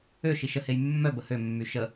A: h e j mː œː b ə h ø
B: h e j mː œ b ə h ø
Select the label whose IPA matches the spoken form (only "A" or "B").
B